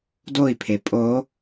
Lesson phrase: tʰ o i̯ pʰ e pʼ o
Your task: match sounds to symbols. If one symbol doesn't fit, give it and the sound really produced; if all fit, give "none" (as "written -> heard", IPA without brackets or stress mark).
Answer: tʰ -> d